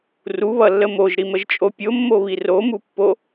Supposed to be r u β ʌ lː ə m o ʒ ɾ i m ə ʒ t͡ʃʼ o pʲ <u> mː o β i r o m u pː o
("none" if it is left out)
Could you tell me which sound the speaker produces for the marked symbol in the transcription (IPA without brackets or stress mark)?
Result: o